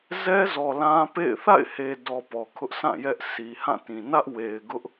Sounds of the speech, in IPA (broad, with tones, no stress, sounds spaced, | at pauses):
z ɛ˦ z ɔ˨ l ã˦ p ḛ˦˨ ɪ̯ θ a̰˦˨ ɪ̯ h e˨ d ɔ˨ p ɔ˨ kʰ ʊ˦ ʔ sʰ ã˦˨ j ɛ˦ ʔ sʰ i˨ h ã˦˨ t ĩ˨ n ä˦ ʔ w e˨ ɪ̯ ɡ ʊ˦ ʔ